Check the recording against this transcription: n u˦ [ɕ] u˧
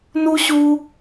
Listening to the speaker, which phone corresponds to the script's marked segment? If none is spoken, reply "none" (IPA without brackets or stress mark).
ɕ